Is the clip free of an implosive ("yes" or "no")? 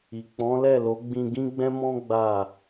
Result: yes